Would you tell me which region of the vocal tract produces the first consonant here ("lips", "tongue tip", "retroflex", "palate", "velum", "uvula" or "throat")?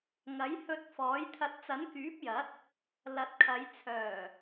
velum